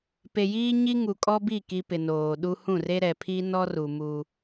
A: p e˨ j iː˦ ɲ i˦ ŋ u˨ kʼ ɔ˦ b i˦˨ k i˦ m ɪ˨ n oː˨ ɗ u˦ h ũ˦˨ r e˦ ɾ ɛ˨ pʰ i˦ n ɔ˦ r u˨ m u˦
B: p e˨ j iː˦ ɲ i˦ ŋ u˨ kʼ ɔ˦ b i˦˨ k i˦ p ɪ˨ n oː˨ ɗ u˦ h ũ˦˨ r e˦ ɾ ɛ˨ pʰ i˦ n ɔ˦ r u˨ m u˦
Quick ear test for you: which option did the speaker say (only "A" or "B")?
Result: B